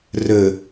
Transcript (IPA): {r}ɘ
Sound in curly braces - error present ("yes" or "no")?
no